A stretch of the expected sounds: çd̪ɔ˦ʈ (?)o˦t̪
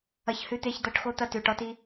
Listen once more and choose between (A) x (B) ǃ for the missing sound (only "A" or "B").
A